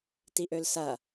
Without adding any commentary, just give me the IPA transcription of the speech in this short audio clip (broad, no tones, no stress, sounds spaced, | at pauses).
t i ʔ ø l s ɐ